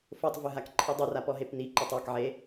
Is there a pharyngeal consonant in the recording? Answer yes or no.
yes